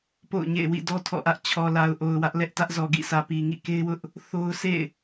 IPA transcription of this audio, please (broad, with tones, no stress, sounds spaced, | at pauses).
p o̰˦˨ ʊ̯ ɲ ḛ˦˨ ɪ̯ w ḭ˦˨ d ɔ˦ tʰ ɔ̰˦˨ ʔ ä˦ ʔ t͡ɕʰ ɔ˨ l a˨ ʊ̯ ʔ o˨ ʊ̯ w ä˦ ʔ l ɛ˦ ʔ t ä˦ ʔ z ɔ˨ ɡ ḭ˦˨ s ä˨ p i˨ ŋ ḭ˦˨ k e˦ ɪ̯ w ʊ˦ ʔ | θ o˦ ʊ̯ s ḛ˦˨ ɪ̯